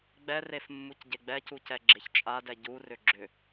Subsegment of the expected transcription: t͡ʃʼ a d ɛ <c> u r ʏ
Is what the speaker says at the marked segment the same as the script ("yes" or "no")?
no